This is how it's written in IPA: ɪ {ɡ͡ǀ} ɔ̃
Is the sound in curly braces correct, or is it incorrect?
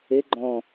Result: incorrect